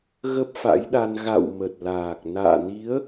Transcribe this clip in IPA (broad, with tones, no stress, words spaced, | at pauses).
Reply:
ɣə˦˥p̚fa̰˧˥jɗa˧n ɣa̰˧˨w mə˨˩t̚laː˨˩k̚ na̰ː˧˨ni˨˦ə̯